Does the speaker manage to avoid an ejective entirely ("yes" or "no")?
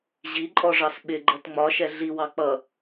no